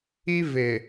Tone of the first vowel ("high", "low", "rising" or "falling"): high